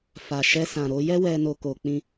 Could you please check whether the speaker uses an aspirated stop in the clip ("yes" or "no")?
no